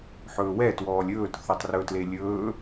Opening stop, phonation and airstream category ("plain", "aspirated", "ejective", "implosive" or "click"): plain